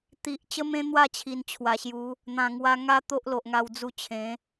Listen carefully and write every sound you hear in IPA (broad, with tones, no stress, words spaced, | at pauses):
t̪i˨ʔ t͡ɕə˦mẽ˦ n̪wa˥˧t͡ɕʰi˨˩nt͡ɕʰwa˨˩ɕju˨˦ | n̪ã˨˩ŋwa˧ ŋa˦ t̪o˦ʔlo˨ʔŋa˧w d͡zu˧t͡ɕʰẽ˨˦